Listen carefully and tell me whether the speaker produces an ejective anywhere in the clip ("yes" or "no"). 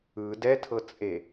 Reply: yes